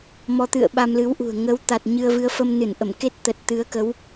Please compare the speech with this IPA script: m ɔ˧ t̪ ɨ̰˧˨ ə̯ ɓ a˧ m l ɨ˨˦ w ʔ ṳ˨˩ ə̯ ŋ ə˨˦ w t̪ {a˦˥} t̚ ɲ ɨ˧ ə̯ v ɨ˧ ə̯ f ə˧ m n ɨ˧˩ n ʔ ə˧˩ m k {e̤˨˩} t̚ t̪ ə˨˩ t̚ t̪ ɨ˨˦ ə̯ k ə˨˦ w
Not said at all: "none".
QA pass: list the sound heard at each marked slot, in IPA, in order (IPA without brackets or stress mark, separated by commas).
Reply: a˨˩, e˦˥